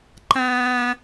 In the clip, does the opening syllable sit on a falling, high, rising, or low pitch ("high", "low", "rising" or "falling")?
high